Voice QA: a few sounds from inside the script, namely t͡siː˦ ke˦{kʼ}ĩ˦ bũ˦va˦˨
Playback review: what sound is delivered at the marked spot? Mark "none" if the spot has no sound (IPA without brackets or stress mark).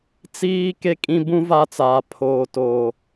kʼ